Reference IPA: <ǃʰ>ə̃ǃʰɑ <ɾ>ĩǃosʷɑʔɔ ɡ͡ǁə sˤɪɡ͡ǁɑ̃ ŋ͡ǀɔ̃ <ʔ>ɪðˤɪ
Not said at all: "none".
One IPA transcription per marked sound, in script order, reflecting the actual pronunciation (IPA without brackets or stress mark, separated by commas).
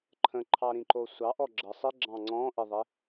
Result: ǃʰ, ɾ, ʔ